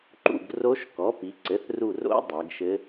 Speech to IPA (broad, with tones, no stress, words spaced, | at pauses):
ǃṵ˥˩ɡro˧˥ʃkɔ˩˥pi˩˧ ǀɘ˩˥θru˧˩ro̰˧˥ dˤɛ˩˧ɡʃɘ˧˥